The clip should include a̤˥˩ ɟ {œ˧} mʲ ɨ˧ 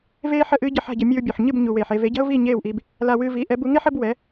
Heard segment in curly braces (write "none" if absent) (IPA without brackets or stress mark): ə˧